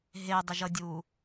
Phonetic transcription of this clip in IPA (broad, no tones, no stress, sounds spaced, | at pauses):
ɦ e dˤ e ʒ ʌ dʲ uː